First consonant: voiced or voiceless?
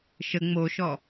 voiceless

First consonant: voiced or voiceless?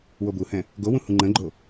voiced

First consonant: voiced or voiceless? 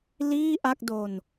voiced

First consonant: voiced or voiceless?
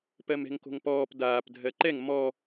voiceless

